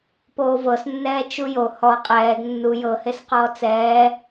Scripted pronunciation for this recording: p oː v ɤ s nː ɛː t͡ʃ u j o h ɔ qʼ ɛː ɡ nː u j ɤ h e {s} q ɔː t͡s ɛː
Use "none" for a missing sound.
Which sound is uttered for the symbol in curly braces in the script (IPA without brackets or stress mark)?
s